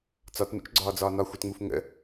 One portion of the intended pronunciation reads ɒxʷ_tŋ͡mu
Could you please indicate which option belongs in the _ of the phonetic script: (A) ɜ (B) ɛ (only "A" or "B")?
B